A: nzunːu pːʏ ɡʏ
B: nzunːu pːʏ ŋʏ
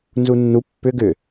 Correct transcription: A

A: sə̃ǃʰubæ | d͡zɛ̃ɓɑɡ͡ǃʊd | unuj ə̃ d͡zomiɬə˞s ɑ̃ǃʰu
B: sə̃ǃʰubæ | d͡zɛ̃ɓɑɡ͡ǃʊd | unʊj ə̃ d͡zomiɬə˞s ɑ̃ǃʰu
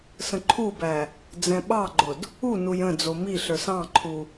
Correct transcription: A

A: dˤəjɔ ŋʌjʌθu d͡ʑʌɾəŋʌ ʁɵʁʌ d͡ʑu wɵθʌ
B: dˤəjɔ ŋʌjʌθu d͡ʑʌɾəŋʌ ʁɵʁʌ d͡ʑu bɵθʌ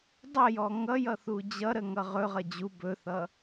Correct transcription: B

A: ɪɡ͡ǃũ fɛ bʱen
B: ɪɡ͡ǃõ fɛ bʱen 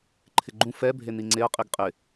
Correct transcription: A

